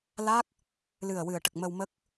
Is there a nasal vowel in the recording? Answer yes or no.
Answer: no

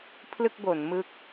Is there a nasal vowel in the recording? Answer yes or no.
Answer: no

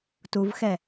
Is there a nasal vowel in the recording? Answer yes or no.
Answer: no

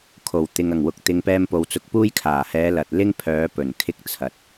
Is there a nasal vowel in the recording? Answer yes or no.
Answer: no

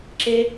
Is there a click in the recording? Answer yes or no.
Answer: yes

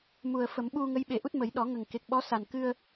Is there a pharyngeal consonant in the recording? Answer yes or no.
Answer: no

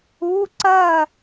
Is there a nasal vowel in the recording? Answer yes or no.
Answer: no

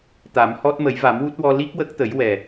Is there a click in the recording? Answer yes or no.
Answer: no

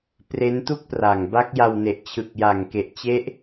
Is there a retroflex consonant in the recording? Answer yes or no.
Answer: no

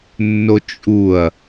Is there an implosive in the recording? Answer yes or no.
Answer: no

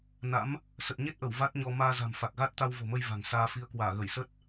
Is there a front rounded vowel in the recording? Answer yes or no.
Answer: no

